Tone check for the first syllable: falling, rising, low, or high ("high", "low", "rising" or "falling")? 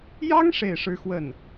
high